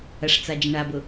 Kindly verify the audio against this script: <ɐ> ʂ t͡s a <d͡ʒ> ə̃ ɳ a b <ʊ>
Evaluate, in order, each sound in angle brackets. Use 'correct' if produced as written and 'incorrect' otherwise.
correct, correct, correct

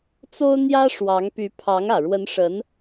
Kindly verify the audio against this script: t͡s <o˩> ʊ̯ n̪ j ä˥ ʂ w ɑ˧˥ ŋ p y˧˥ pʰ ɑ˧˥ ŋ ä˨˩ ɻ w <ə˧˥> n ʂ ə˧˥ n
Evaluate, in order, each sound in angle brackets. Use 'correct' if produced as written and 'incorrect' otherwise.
incorrect, correct

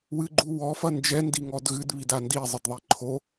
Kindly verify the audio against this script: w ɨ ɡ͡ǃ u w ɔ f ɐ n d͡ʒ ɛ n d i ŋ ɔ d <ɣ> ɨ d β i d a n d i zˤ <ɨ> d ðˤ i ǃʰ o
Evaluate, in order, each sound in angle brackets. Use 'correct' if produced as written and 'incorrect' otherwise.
correct, correct

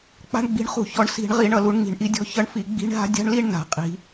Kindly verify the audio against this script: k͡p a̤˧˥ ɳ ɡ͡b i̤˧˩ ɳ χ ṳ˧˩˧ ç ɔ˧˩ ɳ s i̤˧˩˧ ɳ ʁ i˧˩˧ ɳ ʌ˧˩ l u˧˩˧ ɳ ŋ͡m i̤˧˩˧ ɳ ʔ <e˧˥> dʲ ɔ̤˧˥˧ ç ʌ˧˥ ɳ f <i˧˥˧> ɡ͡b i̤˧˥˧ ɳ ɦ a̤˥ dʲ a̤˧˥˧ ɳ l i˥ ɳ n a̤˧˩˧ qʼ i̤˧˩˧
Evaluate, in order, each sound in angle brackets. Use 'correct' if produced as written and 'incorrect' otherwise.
incorrect, incorrect

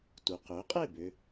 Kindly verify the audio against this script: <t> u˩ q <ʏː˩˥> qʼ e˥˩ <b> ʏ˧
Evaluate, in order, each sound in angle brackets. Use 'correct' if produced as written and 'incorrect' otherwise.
correct, correct, correct

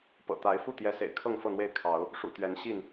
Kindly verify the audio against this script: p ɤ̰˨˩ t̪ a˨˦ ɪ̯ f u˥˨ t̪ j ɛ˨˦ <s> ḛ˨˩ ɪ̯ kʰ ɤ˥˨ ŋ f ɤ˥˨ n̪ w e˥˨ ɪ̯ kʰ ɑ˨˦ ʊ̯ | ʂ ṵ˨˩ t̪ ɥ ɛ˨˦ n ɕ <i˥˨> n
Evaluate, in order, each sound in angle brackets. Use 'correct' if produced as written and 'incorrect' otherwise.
correct, correct

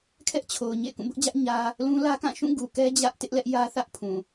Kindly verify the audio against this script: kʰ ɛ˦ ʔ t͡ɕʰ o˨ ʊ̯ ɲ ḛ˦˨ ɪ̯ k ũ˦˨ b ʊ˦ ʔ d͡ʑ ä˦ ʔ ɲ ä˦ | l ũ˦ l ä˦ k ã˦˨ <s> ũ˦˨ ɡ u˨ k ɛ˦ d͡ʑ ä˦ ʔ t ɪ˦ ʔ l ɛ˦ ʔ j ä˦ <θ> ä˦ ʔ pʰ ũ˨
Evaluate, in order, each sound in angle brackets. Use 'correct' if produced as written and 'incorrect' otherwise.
incorrect, correct

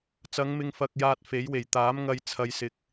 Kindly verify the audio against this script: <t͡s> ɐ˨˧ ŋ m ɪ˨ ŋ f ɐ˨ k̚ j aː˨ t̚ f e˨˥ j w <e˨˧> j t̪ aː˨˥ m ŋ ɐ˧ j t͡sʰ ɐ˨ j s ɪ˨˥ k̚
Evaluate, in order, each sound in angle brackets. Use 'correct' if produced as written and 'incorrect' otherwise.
correct, incorrect

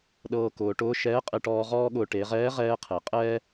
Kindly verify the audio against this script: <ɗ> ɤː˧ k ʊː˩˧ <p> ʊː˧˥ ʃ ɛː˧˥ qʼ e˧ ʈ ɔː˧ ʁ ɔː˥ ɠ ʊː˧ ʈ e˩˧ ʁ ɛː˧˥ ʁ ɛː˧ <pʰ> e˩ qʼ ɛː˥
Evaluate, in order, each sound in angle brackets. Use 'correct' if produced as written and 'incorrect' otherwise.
correct, incorrect, incorrect

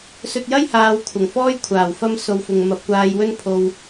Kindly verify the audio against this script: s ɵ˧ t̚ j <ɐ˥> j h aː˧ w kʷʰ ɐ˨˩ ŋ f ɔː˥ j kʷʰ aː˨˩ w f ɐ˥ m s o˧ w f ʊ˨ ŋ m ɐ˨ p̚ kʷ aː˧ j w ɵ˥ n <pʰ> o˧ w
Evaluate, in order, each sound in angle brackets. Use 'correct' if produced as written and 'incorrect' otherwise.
correct, correct

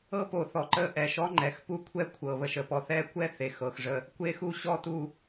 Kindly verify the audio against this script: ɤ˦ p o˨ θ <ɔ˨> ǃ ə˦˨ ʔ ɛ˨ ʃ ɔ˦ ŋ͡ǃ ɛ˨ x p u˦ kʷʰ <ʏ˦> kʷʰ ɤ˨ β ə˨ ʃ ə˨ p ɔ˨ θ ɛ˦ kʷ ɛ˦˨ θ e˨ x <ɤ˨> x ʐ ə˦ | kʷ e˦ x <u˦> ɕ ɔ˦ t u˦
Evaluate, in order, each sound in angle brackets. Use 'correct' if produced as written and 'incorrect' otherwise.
correct, incorrect, correct, correct

